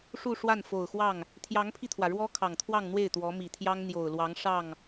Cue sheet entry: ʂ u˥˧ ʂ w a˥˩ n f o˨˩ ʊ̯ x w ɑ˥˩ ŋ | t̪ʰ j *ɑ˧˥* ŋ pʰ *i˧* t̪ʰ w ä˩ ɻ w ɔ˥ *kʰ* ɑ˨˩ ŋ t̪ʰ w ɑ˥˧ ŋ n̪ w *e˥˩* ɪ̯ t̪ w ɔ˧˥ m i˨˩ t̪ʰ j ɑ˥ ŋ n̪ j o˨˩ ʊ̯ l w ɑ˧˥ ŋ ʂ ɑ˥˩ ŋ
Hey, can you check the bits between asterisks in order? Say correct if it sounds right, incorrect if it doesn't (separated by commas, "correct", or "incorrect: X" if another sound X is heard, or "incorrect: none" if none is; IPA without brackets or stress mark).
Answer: correct, correct, correct, correct